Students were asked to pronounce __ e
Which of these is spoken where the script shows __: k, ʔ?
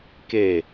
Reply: k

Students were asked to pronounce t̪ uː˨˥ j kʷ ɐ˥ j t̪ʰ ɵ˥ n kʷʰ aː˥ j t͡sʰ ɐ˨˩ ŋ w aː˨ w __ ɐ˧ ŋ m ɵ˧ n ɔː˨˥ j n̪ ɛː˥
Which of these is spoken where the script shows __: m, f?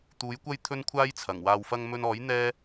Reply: f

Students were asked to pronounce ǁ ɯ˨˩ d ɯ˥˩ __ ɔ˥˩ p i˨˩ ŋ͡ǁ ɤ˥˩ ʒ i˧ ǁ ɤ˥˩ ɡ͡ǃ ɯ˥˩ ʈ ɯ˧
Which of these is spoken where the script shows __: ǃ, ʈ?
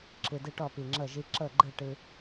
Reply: ʈ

